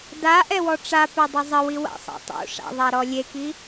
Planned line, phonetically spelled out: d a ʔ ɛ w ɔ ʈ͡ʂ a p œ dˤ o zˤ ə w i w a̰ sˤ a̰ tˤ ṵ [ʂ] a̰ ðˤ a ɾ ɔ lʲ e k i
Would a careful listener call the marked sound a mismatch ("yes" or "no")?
no